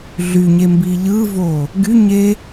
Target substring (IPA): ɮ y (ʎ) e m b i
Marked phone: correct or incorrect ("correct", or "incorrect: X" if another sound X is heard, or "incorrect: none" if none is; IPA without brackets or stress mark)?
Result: incorrect: ɲ